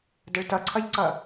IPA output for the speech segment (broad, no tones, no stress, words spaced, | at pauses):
dəɭtʌǀʰʌʎǀʌ